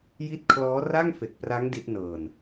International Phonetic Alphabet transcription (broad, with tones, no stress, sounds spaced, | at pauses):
j i˦˥ t̚ kʰ l ɔː˦˥ r a˥˩ ŋ f e˨˩ k̚ p r a˦˥ ŋ d i˦˥ t̚ n ɤː˧ n